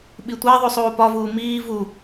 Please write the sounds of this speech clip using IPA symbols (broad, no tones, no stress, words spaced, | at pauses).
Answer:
ɓitʷæðˤu sˤuːpɒvuː miː vu